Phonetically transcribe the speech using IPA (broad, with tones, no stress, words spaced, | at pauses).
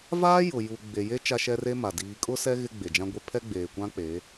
vaː˦jʊ˨ ju˨ɡ͡be˨je˦ t͡ʃa˦ʃɛ˦re˦ma˨ diː˨kʼʊ˦ sɛ˦ ɣɪ˦ɡ͡be˨d͡ʒã˦ɡʷe˦ pʰɛ˦ɡ͡beː˨kʷã˦k͡pe˨˦